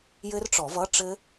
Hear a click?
no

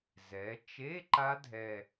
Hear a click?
yes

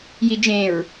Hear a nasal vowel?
yes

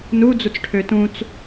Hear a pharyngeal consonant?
no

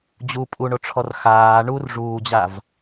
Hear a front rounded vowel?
no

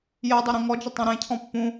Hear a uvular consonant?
no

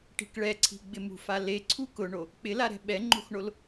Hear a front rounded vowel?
no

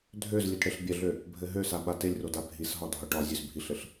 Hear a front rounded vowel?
yes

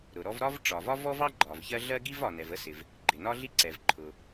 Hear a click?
yes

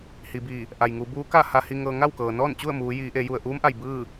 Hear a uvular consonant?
no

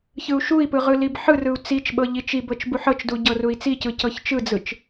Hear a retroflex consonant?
no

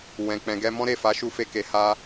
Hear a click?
no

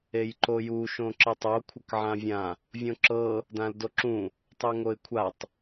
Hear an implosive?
no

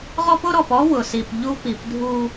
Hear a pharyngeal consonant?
no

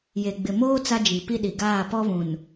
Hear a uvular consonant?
no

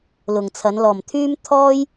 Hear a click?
no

